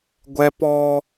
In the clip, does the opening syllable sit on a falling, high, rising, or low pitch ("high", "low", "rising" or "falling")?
high